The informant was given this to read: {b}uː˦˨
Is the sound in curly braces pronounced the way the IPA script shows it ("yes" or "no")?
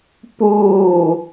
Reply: no